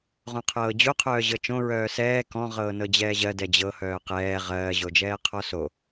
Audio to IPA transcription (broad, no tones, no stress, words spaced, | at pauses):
ʁõqʰɤːd͡ʑo qʰœːʑɤt͡ʃõ ɹœːsɛː kɔ̃ ʁɤːnɤd͡ʑɛːʑɜ dɛd͡ʑɤ hœːqɛː ʁɜː ʑod͡ʒɛːqʰɔso